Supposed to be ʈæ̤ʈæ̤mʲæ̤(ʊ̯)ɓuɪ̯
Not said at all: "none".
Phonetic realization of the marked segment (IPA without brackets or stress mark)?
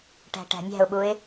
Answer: ʊ̯